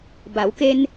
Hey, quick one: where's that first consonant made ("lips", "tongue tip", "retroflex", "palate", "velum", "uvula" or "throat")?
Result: lips